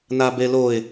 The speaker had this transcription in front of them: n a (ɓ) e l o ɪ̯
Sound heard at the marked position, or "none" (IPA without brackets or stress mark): b